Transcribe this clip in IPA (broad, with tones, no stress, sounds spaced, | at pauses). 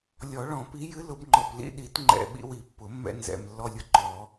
lʲ ɔ˨˩˦ ɭ ɔ̃˨˩˦ p i˨˥ j ɨ˨˥ l ʊ˨˩˦ b ŋ͡ǃ ɔ˨˩ p l ḭ˧ ɗ i˨˩˦ t ŋ͡ǃ ɛ̰˨˩ ɓ ḭ˧ w i˨˩˦ pː ʊ˨˩˦ mː ɛ̰˧ n z ɛ̰˨˩ m lː ɔ˧ lʲ ʊ˧ ǃ ɔ˨˩˦